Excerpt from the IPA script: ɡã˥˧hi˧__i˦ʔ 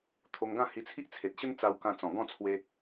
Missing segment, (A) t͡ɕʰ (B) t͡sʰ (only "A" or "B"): B